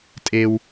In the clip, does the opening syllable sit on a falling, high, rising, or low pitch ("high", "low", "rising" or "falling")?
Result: low